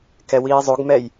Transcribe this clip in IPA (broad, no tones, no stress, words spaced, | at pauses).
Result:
kɛwiːzˤoɡmɛj